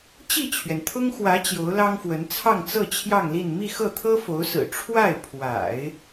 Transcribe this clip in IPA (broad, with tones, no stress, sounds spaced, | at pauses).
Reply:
t͡ɕ i˥˩ t͡ɕʰ ɥ ɛ˩ n t̪ʰ ʊ˥ ŋ x w ä˧˥ t͡ɕ j o˧˥ ʊ̯ l ɑ˥ ŋ f w ə˧˥ n t͡sʰ ɑ˥˧ ŋ t͡s ɤ˥˧ t͡ɕʰ j ɑ˥˧ ŋ l i˥˧ n m i˥˧ x ɤ˥˩ t̪ʰ ɤ˥ f o˧˥ ʊ̯ s ɹ̩˨˩ ʈ͡ʂʰ w a˥˩ ɪ̯ pʰ w a̰˨˩˦ ɪ̯